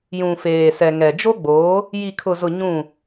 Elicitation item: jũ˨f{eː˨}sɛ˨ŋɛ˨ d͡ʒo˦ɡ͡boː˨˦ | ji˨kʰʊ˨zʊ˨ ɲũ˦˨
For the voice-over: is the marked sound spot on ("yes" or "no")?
yes